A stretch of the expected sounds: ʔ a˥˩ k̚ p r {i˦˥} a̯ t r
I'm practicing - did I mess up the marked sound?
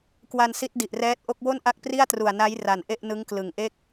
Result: yes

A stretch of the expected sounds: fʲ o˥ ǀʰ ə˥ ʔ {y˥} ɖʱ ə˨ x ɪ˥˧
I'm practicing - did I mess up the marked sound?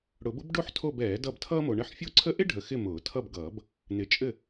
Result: yes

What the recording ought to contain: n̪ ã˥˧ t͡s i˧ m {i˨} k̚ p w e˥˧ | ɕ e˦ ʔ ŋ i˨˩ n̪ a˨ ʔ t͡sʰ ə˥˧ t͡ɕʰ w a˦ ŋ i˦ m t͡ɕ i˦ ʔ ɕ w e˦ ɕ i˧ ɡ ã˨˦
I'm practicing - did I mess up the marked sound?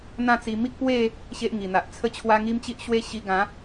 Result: yes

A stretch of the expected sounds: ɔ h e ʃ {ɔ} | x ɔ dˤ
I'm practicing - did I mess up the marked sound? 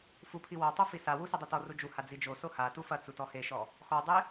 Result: no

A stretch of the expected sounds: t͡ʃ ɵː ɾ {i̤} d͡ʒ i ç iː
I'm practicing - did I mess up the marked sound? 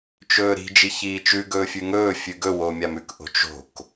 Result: no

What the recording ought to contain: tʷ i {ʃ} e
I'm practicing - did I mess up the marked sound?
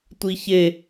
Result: yes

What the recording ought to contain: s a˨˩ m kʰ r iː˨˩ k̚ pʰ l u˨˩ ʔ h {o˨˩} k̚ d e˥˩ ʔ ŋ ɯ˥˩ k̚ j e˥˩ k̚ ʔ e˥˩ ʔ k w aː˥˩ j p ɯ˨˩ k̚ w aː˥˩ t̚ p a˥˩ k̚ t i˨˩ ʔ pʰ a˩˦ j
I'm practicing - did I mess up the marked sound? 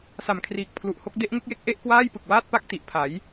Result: yes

